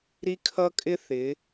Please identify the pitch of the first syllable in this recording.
high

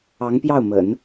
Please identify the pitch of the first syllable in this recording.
rising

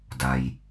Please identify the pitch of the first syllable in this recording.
low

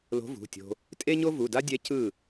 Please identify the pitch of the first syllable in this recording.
rising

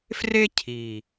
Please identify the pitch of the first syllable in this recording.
high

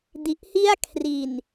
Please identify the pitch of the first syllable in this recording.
low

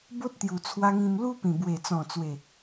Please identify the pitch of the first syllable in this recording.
high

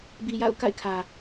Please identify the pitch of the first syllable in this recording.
low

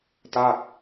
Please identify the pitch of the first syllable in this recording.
falling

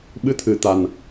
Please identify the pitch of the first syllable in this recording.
rising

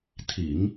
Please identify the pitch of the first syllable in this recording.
low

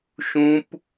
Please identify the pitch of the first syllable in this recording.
high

